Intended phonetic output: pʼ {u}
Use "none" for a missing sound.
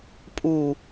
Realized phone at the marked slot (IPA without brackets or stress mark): u